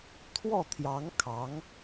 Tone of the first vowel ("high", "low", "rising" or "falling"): falling